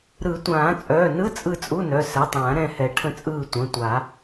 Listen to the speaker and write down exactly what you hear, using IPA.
ɾ ɯ˨˩˦ tʷ ãː˨˩˦ t͡sʼ œː˩˧˩ n ɯ˧˥˧ t͡sʼ ɯ˦˨ t͡sʼ u˧˥˧ n œ˩˧˩ s ɛ˩˧˩ tˤ ãː˨˩˦ ɾ ɛ̃˦˨ h ɛ˨˩˦ ʈʰ ə̃˦˨ t͡sʼ ɯː˦˨ tʷ ə̃ː˩˧˩ tʷ a˨˩˦

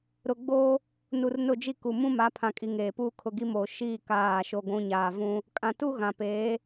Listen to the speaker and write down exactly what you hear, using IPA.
ɾ ʊ˨ ɡ͡b oː˦ | n u˨ r n ʊ˦˨ d͡ʒ i˦ k u˨ m ũ˦ m a˨˦ pʰ ã˨ kʼ i˨ ŋ eː˨ p uː˦ kʰ ʊ˨ ɡ i˦ m oː˨ ʃ iː˦˨ k aː˦˨ ʃ o˦ ɡʷ ũ˦ ɲ aː˨ v ũ˦ | kʼ ã˨ t u˦ ɣ ã˨ p eː˨˦

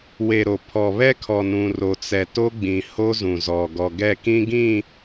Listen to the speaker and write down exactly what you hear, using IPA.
w e˨ ɾ o˨ pʰ ɔ˨ β ɛ˦ kʰ ɔ˨ n ũ˨ r o˨ t͡s ɛ˨ t o˦ ɡ͡b ĩ˨ h o˦ z ũ˨ z ɔ˨ ɡ ɔ˨ ɡ ɛ˦˨ k ĩ˦ ɡ ĩ˦˨

